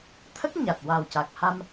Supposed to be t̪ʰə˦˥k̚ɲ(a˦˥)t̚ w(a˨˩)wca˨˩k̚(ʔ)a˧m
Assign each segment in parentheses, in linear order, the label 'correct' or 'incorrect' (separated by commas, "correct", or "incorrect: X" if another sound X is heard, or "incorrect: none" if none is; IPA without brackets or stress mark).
incorrect: a˨˩, correct, incorrect: h